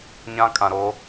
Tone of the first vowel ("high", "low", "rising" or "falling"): high